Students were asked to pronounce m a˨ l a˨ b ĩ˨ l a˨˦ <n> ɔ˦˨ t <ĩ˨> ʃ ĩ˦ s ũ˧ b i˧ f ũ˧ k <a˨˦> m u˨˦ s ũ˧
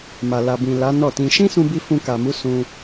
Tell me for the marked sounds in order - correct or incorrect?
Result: correct, incorrect, incorrect

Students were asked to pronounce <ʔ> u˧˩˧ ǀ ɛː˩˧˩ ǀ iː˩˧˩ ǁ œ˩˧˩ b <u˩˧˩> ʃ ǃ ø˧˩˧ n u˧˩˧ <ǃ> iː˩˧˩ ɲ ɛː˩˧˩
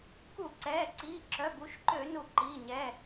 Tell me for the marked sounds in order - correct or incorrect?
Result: incorrect, incorrect, correct

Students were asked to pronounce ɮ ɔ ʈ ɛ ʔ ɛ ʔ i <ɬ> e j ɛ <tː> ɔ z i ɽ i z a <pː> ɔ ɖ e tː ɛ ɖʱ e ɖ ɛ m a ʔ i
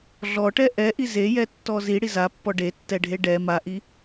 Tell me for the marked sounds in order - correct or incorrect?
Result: incorrect, correct, correct

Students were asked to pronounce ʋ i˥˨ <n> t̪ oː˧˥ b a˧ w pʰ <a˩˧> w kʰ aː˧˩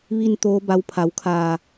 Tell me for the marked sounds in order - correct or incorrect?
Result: correct, correct

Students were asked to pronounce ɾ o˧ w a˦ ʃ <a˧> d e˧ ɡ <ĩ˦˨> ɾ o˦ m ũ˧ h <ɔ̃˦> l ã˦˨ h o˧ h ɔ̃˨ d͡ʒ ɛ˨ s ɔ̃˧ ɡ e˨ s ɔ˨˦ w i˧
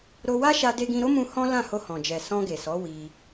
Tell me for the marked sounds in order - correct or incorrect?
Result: correct, incorrect, correct

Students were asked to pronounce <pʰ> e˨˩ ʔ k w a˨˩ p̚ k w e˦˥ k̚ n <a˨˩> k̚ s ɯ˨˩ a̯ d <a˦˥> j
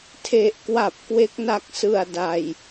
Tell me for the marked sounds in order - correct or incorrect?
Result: incorrect, incorrect, incorrect

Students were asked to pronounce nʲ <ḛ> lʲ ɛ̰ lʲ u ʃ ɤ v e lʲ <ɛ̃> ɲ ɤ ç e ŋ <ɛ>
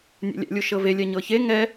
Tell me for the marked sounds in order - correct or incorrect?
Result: correct, incorrect, correct

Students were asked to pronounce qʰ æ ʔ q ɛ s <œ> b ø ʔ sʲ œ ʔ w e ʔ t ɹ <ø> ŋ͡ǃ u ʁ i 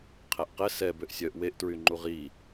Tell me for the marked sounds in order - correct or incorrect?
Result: incorrect, incorrect

